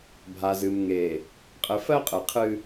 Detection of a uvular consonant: present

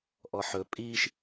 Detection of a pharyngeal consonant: present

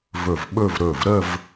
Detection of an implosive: present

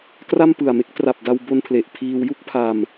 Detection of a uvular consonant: absent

